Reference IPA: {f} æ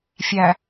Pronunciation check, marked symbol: incorrect: fʲ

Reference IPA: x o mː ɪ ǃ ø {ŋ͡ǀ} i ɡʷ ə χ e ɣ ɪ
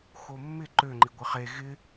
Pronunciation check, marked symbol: incorrect: ŋ͡ǃ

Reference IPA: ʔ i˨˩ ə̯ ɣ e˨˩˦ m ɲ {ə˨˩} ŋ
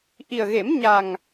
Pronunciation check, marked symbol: incorrect: a˨˩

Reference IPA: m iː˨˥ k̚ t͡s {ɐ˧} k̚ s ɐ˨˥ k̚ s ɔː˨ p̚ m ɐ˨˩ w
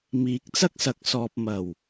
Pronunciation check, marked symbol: incorrect: ɐ˥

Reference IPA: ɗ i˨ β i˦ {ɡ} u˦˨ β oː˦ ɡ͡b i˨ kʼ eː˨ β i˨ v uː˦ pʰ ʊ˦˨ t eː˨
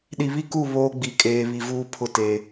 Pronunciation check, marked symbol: incorrect: k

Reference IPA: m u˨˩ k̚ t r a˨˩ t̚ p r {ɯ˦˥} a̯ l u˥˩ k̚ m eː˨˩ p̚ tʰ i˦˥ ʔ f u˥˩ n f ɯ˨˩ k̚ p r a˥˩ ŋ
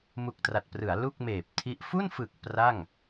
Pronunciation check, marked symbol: incorrect: ɯ˩˦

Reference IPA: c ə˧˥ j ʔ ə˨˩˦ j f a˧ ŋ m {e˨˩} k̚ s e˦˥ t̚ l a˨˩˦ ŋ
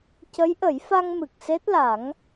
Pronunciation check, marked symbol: incorrect: ɨ˨˩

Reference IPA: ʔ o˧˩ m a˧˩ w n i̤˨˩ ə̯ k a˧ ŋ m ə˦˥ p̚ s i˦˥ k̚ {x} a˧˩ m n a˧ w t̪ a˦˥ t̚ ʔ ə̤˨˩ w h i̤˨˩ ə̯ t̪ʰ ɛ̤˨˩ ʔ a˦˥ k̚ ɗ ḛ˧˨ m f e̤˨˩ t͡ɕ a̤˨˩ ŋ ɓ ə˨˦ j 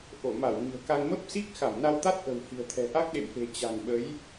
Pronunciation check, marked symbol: correct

